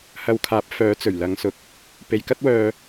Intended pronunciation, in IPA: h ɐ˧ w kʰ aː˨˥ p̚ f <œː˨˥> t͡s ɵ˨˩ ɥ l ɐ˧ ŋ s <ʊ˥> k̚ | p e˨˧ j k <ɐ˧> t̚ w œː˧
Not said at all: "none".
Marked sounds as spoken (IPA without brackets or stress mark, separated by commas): œː˨˥, ʊ˧, ɐ˥